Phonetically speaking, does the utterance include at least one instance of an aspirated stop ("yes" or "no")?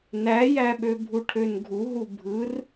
yes